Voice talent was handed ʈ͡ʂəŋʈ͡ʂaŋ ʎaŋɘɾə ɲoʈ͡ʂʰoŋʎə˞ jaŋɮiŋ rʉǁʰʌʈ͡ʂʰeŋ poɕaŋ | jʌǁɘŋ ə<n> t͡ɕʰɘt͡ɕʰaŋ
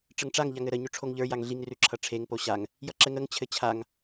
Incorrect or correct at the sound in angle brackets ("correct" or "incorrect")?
incorrect